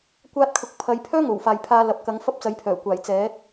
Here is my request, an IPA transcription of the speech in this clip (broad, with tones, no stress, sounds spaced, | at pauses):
kʷ aː˥ t̚ kʰ ʊ˧ k̚ pʰ ɐ˨˧ j pʰ œː˥ ŋ o˨˩ w f aː˨ j pʰ aː˧ l ɐ˨ p̚ k ɐ˨˥ ŋ f ɐ˥ p̚ t͡s ɐ˨˥ j pʰ œː˨˩ kʷ aː˨˩ j t͡s ɛː˨˥ t̚